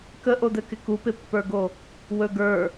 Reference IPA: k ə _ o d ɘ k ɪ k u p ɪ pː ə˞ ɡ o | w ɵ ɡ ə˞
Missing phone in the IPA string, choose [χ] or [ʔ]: ʔ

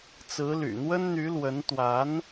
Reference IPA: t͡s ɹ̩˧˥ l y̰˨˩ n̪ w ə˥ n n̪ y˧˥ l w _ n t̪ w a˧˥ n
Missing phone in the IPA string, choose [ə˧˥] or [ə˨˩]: ə˧˥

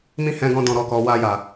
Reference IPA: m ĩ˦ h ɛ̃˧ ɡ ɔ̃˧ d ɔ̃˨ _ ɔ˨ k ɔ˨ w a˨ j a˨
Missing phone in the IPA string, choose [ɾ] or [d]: ɾ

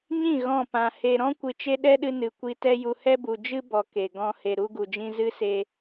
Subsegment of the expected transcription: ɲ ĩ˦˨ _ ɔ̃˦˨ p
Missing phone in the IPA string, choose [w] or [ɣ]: ɣ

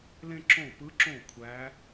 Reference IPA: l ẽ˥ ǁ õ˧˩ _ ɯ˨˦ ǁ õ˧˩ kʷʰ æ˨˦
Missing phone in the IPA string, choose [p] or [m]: p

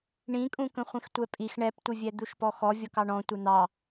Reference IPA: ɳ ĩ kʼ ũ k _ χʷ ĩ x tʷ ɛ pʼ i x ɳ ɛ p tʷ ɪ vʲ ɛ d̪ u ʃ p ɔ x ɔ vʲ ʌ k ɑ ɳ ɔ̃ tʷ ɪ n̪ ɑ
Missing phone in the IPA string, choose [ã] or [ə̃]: ə̃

